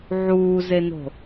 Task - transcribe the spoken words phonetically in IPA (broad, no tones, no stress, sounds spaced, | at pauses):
ʕ uː z e n o̤